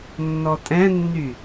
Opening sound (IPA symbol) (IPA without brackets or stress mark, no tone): nː